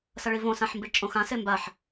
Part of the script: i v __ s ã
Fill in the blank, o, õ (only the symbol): õ